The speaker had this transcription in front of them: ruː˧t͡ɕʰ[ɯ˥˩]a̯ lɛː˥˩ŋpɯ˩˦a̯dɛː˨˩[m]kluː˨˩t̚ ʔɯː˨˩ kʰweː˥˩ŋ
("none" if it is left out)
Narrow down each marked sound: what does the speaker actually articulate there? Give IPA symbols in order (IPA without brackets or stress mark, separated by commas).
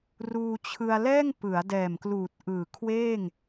ɯ˧, m